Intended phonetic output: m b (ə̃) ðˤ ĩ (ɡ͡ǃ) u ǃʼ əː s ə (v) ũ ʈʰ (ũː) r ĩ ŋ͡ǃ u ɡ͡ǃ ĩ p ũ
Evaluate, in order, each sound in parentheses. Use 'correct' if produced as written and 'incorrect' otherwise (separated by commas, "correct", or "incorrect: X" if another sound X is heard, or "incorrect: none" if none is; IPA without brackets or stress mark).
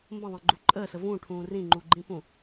correct, correct, correct, correct